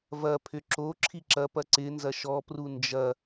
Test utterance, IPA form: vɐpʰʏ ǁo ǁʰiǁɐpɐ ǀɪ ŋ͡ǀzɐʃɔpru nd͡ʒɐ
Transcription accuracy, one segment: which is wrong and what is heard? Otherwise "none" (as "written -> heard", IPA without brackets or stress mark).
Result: ŋ͡ǀ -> n